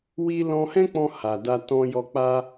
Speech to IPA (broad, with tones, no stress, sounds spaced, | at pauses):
w i˧ l ɔ̃˧ h ɛ̃˦ k͡p ɔ̃˧ h a˨ d a˧ t ɔ̃˧ j ɔ˧ k͡p a˦